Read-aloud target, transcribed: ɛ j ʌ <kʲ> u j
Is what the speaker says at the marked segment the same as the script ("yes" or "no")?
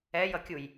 yes